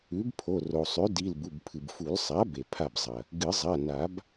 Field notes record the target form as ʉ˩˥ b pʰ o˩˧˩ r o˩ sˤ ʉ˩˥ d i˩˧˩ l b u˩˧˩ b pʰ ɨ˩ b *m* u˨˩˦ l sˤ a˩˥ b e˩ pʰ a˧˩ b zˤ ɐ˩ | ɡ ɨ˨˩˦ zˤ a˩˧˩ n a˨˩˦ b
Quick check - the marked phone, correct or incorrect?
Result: incorrect